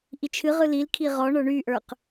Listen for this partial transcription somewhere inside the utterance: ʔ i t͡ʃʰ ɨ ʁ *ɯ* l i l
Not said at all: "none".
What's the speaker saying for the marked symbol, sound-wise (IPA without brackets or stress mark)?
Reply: ɯ